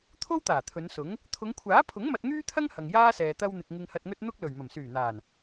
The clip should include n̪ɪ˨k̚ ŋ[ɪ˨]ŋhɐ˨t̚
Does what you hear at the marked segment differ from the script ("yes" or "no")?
no